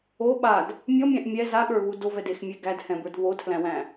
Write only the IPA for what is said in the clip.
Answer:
o ɓ a d | mʲ ɔ mʲ æ̃ ʔ mʲ ɛ z a ɠ ə˞ β u d o v ɛ d e x mʲ e ɡ æ d h ɛ̃ b ə˞ d β o tʰ l æ̃ w æ̃

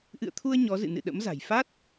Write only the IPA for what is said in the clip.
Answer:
ʔ ɨ̰˧˨ ə̯ t̪ʰ u˧ ə̯ ɲ ɔ˨˦ z ɨ̰˧˨ n ɨ̰˧˨ ɗ ə̰˧˥ m z a̤˨˩ j f a˦˥ t̚

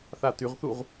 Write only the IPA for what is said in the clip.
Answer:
θ a t y ʁ θ u ʁ

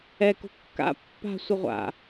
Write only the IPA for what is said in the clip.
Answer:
ɛ k o̤ kː a̰ pː a̤ sʷ ɪ ʁʷ a̰

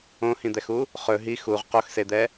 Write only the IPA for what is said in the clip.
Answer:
õ h ĩ d̪ ɛ x u | χ ɵ ɦ i x u ʁ q o x s e d̪ ɛ

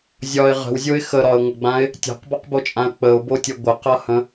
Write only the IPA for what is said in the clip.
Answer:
zʲ ɒ ɪ̯ ʁ ə̤ w zʲ o ɪ̯ x ə ɾ ɒ ə̯ ŋʷ ə ɡ͡b ã ɪ̯ | tʲ a̤ q b ɒ q b o t͡ʃʼ ã ə̯ k͡p ə ʊ̯ b o tʲ ə ɡʷ ə q ʌ h ə̃

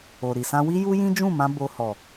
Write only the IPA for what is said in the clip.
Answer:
o˨ ɾ i˨ s ã˧ w i˦ j u˦ j ĩ˦ d͡ʒ ũ˦˨ m ã˧ b o˧ h ɔ˨

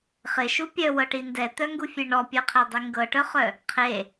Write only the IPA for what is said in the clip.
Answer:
χ ɪ ʃ u pʲ œ w ɤ ʈ i n d ɛ t̪ œ ŋ ɡ u fʲ e ɳ ɔ pʲ œ qʰ e dˤ i ŋ ɡ ɤ ʈ œ χ œ | qʰ e

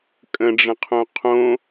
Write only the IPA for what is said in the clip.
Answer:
kʼ ə̃ ɖ͡ʐ ə̃ qʰ õ qʰ õ

